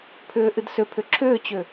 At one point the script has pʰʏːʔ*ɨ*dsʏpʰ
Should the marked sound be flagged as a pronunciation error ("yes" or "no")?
no